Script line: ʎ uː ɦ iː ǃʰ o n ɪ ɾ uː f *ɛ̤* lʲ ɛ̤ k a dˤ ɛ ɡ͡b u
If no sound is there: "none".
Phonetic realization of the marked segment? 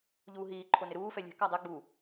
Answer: ɛ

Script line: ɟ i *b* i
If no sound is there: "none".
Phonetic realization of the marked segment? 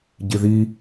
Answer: ð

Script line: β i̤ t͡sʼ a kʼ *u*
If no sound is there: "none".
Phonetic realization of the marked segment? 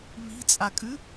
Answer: ʉ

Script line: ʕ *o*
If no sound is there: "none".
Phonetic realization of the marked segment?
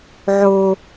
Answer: o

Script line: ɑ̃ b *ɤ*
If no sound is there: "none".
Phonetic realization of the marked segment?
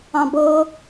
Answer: ɤː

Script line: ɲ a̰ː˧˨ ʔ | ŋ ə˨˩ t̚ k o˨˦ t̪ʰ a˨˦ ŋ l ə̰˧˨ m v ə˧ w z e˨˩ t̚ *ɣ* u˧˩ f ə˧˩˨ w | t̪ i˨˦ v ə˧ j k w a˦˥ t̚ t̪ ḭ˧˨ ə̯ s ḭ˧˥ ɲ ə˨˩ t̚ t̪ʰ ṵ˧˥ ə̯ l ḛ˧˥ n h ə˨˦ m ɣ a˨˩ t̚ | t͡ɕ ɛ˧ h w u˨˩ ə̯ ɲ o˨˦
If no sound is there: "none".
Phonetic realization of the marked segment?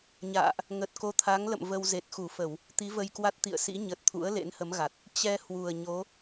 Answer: x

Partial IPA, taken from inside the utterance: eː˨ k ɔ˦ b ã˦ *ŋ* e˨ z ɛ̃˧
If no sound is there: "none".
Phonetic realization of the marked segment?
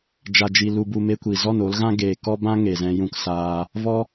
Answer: ŋ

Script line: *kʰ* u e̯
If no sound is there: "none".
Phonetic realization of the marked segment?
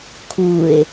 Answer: kʰ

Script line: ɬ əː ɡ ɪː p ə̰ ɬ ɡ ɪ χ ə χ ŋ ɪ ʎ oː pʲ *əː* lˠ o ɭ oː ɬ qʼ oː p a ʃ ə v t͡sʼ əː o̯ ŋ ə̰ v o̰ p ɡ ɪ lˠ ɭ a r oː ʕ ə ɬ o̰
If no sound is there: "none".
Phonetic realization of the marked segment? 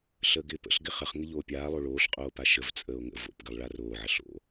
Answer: aː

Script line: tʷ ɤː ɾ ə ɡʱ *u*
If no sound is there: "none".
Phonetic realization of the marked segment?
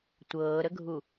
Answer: u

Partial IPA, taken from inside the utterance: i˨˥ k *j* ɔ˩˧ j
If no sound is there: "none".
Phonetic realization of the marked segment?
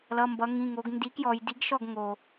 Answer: j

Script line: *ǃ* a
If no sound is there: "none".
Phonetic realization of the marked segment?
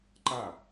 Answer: ǃ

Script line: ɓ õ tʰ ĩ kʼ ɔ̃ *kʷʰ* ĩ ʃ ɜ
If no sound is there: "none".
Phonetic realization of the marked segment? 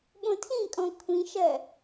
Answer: kʷʰ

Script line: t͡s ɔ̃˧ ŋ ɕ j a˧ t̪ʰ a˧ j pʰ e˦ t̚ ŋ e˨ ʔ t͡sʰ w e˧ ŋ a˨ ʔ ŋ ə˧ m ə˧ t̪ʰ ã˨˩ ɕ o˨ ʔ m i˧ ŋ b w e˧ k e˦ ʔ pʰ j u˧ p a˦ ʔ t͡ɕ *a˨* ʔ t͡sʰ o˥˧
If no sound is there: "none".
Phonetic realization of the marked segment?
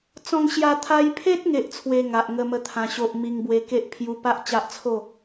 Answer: a˦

